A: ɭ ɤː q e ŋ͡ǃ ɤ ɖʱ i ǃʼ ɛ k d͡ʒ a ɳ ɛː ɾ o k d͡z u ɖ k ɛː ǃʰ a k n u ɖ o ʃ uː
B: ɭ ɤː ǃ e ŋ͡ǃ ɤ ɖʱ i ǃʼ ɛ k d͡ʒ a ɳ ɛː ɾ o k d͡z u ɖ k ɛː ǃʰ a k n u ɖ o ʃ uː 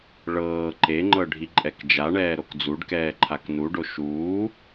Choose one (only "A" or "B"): B